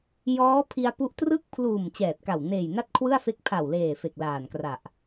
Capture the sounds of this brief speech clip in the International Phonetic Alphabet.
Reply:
j ɔː˦˥ pʰ i˧ a̯ p u˦˥ ʔ t r ɯ˥˩ k̚ pʰ l uː˨˩ m t͡ɕ ɛː˨˩ t̚ k a˨˩ w n eː˨˩ j n a˥˩ t̚ kʰ w ɯ˥˩ a̯ f e˦˥ k̚ pʰ a˨˩ w l eː˨˩ f e˨˩ k̚ l aː˨˩ n k r a˨˩ ʔ

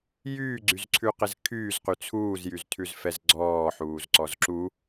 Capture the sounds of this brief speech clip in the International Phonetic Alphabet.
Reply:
j yː ɡ͡ǀ y z ǀʰ ʉ q ɪ z kʰ yː z q y t͡sʰ uː z j y z tʰ ʉ z f ɛ z ɡ͡ǀ ɔː ħ uː z ǀ ɔ z ǁ u

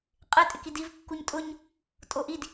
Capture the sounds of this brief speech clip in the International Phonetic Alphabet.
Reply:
qʼ ɪ tʼ ɪ k i d i v kː u ɲ tʼ ʊ ɲ | tʼ o ʔ i d

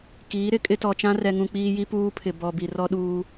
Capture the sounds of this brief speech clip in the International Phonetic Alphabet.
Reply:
k iː˨˦ ɾ ɪ˦ kʼ ɪ˦ t ɔ˨ t͡ʃ ã˦ r ɛ˨ ŋ ũ˨ k͡p iː˦ j i˦ p uː˦ pʰ ɪ˨ b ɔ˨ b i˨ r ɔ˦ ɗ uː˦

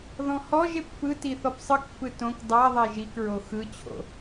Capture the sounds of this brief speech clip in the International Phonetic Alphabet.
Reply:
ð ɔ̃ h ɔ ʒ e p f ɯ t i θ ɔ p sˤ ɯ k f ɯ t õ k dˤ a ðˤ e ʒ i k ɹ o x ɯ t͡ɕʰ o̰

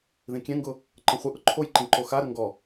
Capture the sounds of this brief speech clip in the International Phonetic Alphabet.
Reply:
ð ĩ kʲ ɛ̃ ŋ ɡ ʊ | ǃ ə̃ χʷ ə ʔ ʊ ǃʰ o j ǃ ĩ ǃ o x a ɾ ə ŋ ɡ ɔ

